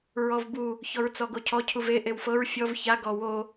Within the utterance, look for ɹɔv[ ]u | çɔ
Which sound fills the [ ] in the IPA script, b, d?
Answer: b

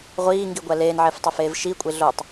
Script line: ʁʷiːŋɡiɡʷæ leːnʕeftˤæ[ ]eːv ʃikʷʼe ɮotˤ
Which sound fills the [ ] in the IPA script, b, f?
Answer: f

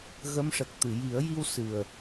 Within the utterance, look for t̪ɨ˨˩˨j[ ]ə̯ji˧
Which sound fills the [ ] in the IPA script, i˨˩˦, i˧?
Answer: i˨˩˦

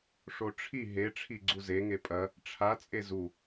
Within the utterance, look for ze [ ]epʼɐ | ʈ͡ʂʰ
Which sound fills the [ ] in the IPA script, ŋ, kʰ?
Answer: ŋ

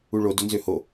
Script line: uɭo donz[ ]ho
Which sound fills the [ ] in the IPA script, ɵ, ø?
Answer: ø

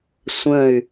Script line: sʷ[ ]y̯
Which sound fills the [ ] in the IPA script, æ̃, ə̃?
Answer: ə̃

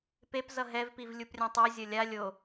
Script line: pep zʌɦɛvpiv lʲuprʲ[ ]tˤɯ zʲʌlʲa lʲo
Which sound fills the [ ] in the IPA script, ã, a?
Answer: ã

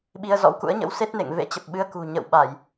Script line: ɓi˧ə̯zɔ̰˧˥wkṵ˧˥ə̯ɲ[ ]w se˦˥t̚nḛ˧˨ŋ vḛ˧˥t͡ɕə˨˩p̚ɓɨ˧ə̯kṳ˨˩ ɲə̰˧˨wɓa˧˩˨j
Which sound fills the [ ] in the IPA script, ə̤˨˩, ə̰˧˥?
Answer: ə̰˧˥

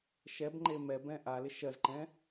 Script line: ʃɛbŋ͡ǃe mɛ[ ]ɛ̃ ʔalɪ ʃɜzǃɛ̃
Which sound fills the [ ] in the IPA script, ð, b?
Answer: b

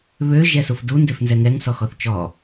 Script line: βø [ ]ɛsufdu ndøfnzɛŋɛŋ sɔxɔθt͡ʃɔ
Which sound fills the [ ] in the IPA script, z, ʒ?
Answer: ʒ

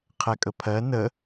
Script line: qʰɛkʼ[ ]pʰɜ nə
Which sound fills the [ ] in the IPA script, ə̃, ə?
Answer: ə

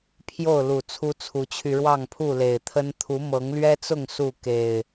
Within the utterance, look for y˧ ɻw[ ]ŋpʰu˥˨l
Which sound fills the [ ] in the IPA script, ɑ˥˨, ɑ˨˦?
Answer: ɑ˥˨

